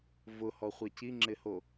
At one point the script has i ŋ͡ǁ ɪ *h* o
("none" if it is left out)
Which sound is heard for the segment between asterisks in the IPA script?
h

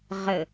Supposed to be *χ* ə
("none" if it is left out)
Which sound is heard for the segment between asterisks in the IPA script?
ʁ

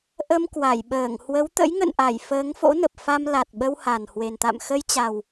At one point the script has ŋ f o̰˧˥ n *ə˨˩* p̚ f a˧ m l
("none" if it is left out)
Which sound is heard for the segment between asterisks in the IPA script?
ə˨˩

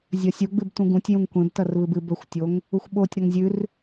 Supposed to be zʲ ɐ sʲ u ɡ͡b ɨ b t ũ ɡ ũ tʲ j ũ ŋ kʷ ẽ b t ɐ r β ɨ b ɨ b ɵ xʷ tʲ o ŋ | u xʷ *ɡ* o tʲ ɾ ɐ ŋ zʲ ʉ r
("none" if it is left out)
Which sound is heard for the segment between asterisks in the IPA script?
ɓ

